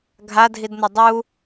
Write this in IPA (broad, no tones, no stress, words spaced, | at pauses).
ɡʱadʱidnʌ dˤu